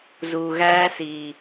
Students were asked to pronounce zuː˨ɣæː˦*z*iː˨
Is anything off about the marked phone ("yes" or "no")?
yes